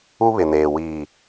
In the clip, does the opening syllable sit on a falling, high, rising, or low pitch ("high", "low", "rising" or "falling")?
high